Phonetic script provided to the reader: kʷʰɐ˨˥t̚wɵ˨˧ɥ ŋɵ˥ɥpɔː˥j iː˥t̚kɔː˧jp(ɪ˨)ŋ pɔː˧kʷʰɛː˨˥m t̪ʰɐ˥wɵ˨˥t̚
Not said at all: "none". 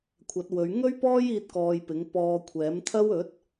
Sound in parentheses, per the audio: ɪ˨˥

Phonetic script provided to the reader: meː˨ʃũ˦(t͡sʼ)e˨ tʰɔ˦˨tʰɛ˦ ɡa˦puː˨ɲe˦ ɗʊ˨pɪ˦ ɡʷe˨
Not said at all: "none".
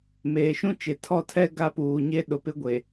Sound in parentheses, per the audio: t͡ʃ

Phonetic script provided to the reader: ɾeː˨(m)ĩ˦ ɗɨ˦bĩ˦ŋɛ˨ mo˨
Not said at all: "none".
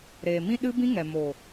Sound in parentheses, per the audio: m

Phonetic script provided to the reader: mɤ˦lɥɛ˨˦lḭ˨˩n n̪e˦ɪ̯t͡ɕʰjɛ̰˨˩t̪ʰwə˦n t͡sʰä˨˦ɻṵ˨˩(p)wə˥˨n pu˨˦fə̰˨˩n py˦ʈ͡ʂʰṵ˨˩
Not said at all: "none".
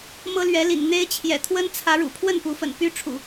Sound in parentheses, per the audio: pʰ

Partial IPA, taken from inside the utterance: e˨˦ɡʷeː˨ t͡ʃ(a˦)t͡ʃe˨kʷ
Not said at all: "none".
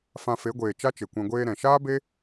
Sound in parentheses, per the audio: a˦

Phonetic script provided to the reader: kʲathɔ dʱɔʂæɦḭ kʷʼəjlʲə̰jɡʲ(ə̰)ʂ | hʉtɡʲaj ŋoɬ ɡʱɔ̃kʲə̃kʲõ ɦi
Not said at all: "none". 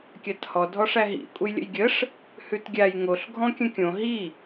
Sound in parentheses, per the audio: ə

